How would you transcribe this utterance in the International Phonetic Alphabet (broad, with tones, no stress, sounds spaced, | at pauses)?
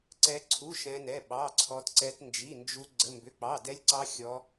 ǀ ɛ˦˥ ǀʰ u˧˥˧ ʃ ɛ̃˦˥ n ɛ˧˥˧ ɓ ɑ˧˥˧ ǀʰ ɔ˦˥ t ǀ ɛ˦˥ t n d͡ʒ i˧˥˧ n d͡ʒ u˦˥ ɡ͡ǀ ə˧˥˧ m b ʏ˧˥˧ k͡p ɑ˧˥˧ d ɛ˦˥ lʲ ǀ ɑ˦˥ xʲ ɔ˦˥